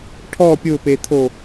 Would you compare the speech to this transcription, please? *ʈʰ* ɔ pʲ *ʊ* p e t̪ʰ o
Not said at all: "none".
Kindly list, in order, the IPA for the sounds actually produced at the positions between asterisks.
ʈʰ, ʊ

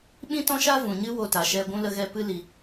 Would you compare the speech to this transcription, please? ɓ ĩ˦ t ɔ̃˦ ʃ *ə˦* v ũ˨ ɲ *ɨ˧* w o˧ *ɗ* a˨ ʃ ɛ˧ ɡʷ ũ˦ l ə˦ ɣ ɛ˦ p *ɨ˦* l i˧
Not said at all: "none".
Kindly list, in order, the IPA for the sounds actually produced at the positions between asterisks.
a˦, ɨ˦, t, ɨ˦

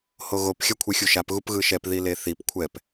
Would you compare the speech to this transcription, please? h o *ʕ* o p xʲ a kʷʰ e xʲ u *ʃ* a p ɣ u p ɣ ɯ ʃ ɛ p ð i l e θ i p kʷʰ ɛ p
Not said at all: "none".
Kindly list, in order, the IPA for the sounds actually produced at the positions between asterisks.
ɣ, ʃ

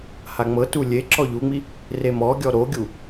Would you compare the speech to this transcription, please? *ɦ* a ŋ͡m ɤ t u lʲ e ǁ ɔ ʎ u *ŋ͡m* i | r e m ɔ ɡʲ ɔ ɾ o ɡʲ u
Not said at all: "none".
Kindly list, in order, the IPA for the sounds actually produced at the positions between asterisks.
h, ŋ͡m

